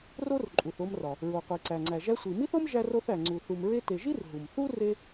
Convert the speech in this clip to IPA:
r o˥ r ǃʼ u˩ θ o˧ m r ɒ˩ | ɹ o˩ qʷ i˩ ǀ æ˩ ŋ͡ǀ æ˩ ʒ æ˧ sʷ i˩ m i˥ θ o˥ m ʒ æ˧ r o˧ θ æ˩ ŋ͡ǀ u˩ θ u˩ m ɹ e˧ t e˩ ʒ i˥ r ɦ u˩ m θ u˥ r e˧

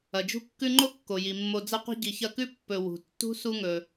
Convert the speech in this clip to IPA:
ɐ˩ d͡ʒ ṳ˦ kː ʉ˦ ŋ͡ǃ o˥ kː o˩ j i˩ mː o˨ d͡z ɐ˦ qʷ i̤˦ ɟ i˨ ç ɐ˦ k ʉ˥ pː ɵ˨ w ṳ˩ tː ṳ˥ s u˥ ŋ ɵ˨

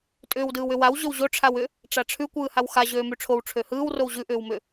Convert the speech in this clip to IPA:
tʼ ʏː w d ɯː w ʏ w a w ʑ ø w ʑ o ʈ͡ʂʰ a w ʏ | ʈ͡ʂ a ʈ͡ʂʰ ʉ kʷ ɯː h a w x a ʑ øː m ʉ ʈ͡ʂʰ o w ʈ͡ʂʰ ø h ɯː w r o w ʑ ʉ ʔ ʏː w m ʏ

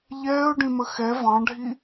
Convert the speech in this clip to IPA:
ʎ ɛː ʊ̯ ɖ ĩ m ə x ɛ v ɑ̃ ɖʱ i

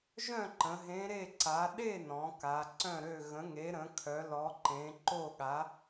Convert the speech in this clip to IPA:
ʒ œ̃˥˨ ǃ ə̃˩˧ ɦ ẽ˨˥ ɾ e˥˨ ǀ a˨˥ ɗ e˥˨ n ɔ̃˩˧ k a˩˧ ǀ œ̃˥˨ ɾ ø˥˨ ɣ ə̃˨˥ ŋ e˨˥ ɾ ə̃˨˥ kʰ œ˨˥ l ɔ˨˥ ǃ ẽ˨˥ ǃ o˥˨ ɠ a˨˥

